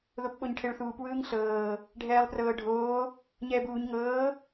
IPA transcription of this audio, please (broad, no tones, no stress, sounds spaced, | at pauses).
ð o p ɓ o ɲ ʈʰ e ɭ θ uː p w ɯː ŋ ɬ ɤː | ɖʱ ɛː lˠ p r ɤː ɖʱ oː | ɲ ɛː b uː ɲ ŋ ɤː